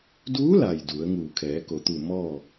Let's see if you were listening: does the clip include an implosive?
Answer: no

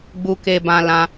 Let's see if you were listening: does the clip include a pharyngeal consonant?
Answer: no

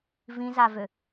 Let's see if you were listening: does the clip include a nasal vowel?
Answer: yes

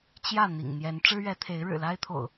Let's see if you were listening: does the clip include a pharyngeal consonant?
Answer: no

